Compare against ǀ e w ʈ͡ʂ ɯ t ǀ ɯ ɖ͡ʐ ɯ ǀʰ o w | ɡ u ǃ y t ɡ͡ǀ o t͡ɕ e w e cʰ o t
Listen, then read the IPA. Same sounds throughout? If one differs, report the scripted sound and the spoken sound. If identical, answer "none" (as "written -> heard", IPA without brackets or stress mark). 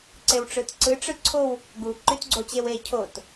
ɖ͡ʐ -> ʈ͡ʂ